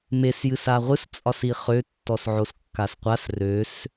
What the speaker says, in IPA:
m e s j ɨ s a ʁʷ ɨ s t͡sʼ ɒ s i χ ø tː ɔ s ʕ o s kː a s qʷ a s r ø s

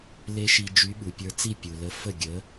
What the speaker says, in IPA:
l e˦˥ ʃ i˧ d͡ʒ y˨˥ ɓ u˩ pʲ ə˞˧ t͡s i˥˩ pʲ u˩ l ə˨˥ f ə˥˩ ɡʲ ə˨˥

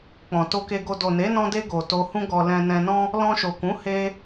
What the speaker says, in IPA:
k͡p ɔ̃˨ t o˧ k e˧ ɡ o˧ d o˨ n e˨˦ n ɔ̃˧ d e˧ ɡ o˨ t o˧ h ũ˦ ɡ ɔ˧ l ɛ̃˧ n ɛ̃˧ n ɔ̃˦ | l ɔ̃˧ ʃ o˨ k ũ˨˦ h e˦

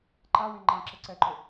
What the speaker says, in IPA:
ǃ a w ẽ ŋ͡ǃ ã ǁ ə ǀ ɛ ǃ ʊ

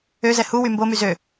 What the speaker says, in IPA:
ø z ɛ h u w y m b o m y z ø

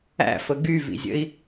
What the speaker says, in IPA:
æ̰ f ə ɡ y v ḭ zʲ ə̰ i̯

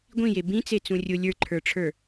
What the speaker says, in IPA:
ɡʷ ĩ j e b ĩ t͡s e t͡s ũ rʲ ʊ lʲ ə˞ ǃʰ ə˞ ʈ͡ʂʰ ə˞

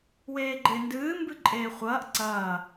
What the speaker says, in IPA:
w eː ɡ͡ǃ e n d ɨː m b ɨ ǃʼ eː χʷ ɐː ʔ ǀ ɐː

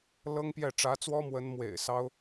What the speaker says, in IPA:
l ɤ˥ ŋ p j ɛ˥˩ ʈ͡ʂ ä˧˥ t͡s w ɔ˥ m w ə˧˥ n m w ḛ˨˩ ɪ̯ s ɑ˥ ʊ̯

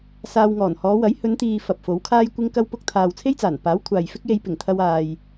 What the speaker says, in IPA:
s aː˧ w ŋ ɔː˨˩ n h ɔː˨˧ w ɐ˨˥ j h ɵ˨˧ n t̪ iː˨ f ɐ˨ p̚ f o˨˥ w kʰ aː˥ j kʷ ɪ˥ ŋ k ɐ˥ w p ʊ˥ k̚ t̪ʰ aː˨ w t͡sʰ e˥ j t͡s aː˨˩ n p aː˨˥ w kʷʰ aː˨ j f ɪ˥ k̚ j e˧ j p ɪ˨˩ ŋ t̪ʰ ɐ˧ w aː˨ j

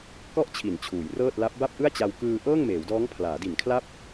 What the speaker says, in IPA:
k ɔ˥˩ ʔ t͡ɕʰ i˩˦ n t͡ɕʰ uː˩˦ j r ɤː˥˩ t̚ l a˦˥ p̚ b a˥˩ p̚ ʔ ɯ˥˩ a̯ t͡ɕ a˧ w k ɯː˧ ʔ ɤː˥˩ ŋ m eː˩˦ w d ɔː˦˥ ŋ pʰ l aː˩˦ d i˨˩ n kʰ l a˥˩ p̚

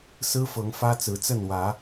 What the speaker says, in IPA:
s ɹ̩˦ f ɤ˨˦ ŋ f ä˦ t͡s ɹ̩˨˦ t͡s ə˥˨ n w ä˨˦

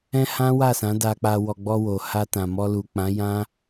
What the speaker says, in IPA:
ɛ̃˦ h ã˦ w a˦˨ s ã˨˦ d a˧ k͡p a˧ w ɔ˧ ɡ͡b ɔ˧ w o˨ h a˧ t ã˨ m ɔ˧ l u˨ k͡p ã˨˦ j ã˦

